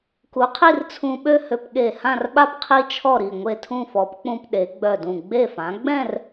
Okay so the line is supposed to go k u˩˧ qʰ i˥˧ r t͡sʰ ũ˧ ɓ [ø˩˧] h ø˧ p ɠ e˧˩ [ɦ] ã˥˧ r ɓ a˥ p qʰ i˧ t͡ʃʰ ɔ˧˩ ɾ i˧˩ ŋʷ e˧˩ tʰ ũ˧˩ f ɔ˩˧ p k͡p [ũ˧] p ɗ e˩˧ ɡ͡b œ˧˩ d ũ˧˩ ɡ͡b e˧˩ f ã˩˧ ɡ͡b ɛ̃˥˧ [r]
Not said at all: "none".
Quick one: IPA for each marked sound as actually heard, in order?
ø˥˧, h, ũ˧, r

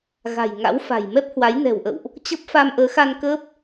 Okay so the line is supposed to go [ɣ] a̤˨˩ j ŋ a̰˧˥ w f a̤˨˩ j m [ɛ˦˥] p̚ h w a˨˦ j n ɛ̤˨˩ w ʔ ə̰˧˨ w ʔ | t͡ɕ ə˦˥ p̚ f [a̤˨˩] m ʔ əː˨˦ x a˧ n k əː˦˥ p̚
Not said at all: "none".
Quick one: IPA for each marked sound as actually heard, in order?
ɣ, ɛ˦˥, a˧

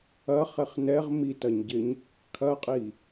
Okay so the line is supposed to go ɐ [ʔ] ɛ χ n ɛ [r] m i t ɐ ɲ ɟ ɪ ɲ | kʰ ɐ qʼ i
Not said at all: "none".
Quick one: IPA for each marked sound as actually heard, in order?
χ, ʁ

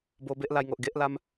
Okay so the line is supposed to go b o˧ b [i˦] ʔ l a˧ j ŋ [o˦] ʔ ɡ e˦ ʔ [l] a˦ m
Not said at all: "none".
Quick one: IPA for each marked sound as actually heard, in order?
e˦, o˨, l

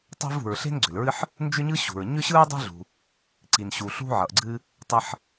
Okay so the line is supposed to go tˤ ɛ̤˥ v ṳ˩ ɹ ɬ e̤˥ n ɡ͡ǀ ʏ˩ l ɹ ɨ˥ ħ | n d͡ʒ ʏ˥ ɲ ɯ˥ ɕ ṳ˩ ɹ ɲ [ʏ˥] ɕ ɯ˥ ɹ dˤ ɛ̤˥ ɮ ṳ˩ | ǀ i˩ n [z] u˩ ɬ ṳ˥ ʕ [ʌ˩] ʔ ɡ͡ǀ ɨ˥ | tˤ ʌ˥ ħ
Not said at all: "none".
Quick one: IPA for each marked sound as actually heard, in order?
ʏ˥, ɕ, ʌ˩

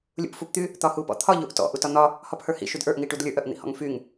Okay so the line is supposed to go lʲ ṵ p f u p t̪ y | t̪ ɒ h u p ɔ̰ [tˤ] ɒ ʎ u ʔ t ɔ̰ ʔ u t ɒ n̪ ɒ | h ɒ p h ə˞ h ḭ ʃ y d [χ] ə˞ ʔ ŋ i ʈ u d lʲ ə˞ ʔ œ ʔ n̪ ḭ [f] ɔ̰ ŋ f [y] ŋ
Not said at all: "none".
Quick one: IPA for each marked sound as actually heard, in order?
t̪ʰ, ʔ, h, y

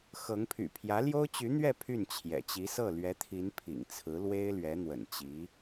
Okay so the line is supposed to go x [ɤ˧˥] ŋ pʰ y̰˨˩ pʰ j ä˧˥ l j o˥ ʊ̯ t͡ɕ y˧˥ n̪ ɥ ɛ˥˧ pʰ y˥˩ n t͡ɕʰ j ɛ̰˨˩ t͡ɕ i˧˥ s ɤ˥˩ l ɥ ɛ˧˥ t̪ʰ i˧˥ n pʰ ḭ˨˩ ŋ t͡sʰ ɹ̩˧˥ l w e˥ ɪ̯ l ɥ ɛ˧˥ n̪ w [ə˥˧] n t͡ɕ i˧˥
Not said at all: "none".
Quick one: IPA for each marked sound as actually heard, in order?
ɤ˧˥, ə̰˨˩

